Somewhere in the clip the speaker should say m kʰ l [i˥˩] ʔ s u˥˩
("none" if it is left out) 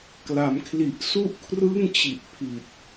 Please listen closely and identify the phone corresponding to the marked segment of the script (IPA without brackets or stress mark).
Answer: i˨˩